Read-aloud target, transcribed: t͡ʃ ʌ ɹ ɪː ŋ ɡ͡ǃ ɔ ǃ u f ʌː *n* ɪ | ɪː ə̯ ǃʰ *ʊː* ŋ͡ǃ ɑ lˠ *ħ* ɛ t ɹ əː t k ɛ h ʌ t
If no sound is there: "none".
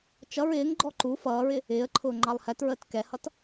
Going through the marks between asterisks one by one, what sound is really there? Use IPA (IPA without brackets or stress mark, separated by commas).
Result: ɹ, ʊː, h